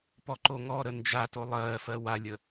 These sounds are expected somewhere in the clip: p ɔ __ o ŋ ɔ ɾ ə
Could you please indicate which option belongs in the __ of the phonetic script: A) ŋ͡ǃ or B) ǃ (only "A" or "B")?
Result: B